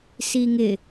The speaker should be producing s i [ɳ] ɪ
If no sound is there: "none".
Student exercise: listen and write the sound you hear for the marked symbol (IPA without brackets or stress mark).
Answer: ŋ